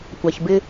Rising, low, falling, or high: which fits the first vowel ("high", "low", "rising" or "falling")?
low